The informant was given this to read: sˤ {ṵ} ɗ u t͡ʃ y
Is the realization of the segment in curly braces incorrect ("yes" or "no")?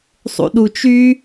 no